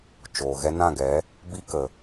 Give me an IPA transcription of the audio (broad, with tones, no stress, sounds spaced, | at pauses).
t͡ʃ oː˨ ɣ ɛ˧ n ã˦˨ ɡ ɛ˨˦ | b i˦ k ə˨